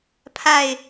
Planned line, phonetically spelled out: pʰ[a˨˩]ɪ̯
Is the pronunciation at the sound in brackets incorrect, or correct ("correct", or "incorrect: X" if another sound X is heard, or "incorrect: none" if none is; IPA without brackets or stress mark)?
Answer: incorrect: a˥˨